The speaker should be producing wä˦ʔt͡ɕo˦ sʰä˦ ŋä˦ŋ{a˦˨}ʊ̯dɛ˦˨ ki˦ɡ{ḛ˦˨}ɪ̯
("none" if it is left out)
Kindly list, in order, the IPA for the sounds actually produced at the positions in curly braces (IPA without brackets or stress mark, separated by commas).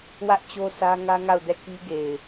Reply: a˦˨, e˨